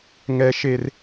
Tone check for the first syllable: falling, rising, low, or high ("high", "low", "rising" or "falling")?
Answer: high